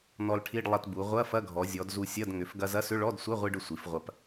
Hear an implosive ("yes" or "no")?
no